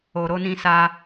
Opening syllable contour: low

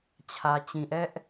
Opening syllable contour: low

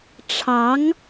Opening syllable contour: rising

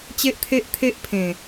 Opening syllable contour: high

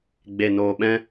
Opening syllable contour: low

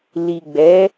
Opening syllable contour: low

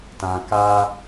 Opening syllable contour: low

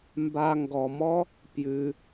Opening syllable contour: low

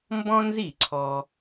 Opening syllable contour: high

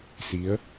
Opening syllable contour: rising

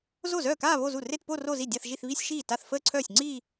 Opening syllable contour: falling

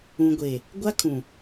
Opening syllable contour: low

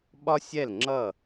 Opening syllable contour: high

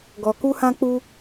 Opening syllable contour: low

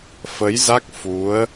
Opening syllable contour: rising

